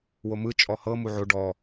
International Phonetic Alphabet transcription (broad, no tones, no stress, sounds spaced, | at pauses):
w o m ɯ t͡ʃʼ ɔ h ɤ m u ʕ o ɖ ɔ